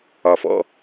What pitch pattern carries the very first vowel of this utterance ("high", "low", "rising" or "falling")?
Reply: low